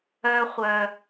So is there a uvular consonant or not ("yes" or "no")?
yes